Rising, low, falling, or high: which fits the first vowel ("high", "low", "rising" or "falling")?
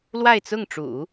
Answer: falling